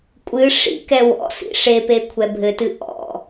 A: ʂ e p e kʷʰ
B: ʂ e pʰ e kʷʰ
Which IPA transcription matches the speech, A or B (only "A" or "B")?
A